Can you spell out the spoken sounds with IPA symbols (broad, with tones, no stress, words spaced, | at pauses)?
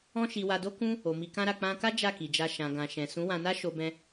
ɔ̃˦ʃi˧wa˧ do˦kũ˦ | o˨mi˧ kã˦ɾa˧ k͡pã˦ ka˦ d͡ʒa˦˨ki˨d͡ʒa˧ ʃã˨ɡã˨ ʃɛ̃˨sũ˨˦ wã˧na˦ ʃo˧bɛ̃˧